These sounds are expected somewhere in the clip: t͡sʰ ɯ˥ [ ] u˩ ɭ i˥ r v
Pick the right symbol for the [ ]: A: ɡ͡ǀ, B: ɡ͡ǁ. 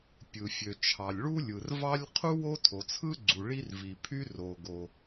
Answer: A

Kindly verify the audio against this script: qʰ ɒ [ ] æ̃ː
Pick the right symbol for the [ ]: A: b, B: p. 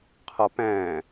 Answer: B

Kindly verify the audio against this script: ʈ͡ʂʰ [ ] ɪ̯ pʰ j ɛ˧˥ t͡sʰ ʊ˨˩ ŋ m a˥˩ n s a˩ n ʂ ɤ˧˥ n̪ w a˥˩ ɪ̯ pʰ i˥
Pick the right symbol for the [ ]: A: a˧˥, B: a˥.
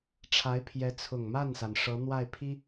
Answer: A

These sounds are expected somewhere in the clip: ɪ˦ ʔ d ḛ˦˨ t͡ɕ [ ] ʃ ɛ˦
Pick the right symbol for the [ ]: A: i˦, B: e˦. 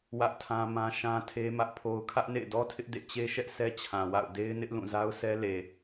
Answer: B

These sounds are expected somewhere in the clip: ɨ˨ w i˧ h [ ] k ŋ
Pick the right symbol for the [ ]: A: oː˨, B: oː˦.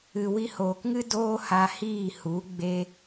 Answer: A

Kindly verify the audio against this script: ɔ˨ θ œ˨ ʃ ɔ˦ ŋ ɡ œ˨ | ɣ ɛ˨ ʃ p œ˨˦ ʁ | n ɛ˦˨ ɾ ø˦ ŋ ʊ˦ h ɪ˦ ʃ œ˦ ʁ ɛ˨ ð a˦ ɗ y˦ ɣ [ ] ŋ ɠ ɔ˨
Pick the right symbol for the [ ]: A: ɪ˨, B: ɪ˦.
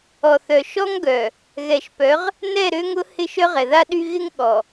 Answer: B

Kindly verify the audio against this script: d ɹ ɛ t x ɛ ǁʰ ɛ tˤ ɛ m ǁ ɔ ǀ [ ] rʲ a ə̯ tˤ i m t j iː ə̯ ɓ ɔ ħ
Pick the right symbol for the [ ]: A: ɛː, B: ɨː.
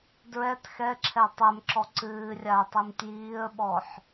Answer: B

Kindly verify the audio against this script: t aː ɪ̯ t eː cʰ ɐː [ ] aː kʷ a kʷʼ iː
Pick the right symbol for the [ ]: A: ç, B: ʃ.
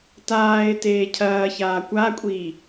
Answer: A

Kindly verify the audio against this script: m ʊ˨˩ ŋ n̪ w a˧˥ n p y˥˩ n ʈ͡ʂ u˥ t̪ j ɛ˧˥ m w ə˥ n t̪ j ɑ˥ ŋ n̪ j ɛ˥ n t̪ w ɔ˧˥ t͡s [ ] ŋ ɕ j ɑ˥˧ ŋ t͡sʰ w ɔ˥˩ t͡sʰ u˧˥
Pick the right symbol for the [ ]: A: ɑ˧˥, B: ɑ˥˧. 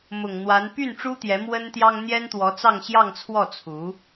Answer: B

